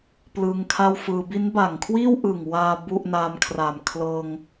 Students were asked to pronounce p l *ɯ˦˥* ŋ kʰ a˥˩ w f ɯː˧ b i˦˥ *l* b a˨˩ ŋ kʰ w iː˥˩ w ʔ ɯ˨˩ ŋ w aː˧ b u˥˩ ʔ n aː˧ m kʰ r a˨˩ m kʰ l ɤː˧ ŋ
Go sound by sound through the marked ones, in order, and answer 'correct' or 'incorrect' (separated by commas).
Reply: incorrect, incorrect